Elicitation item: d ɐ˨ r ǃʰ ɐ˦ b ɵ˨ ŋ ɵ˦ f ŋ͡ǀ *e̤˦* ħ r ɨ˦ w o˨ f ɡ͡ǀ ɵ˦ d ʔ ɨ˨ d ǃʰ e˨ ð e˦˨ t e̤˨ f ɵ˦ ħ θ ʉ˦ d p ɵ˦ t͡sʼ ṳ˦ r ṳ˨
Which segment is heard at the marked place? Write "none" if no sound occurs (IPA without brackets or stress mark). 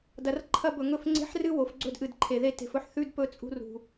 e̤˦